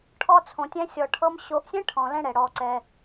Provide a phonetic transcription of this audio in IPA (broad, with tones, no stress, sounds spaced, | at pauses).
ʈʰ ɔ˦ t͡sʰ õ˧ tʲ ɛ̃˦ sʲ ɔ˧ ʈʰ ɤ˦ m ɕ o˧ ʔ sʲ ɛ̃˦ ʈʰ ɔ̃˨ l ɛ̃˦ ɽ ɛ˨ ɽ ɔ˧ ǀ ɛ˧